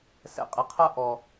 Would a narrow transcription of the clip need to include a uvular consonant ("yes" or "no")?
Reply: yes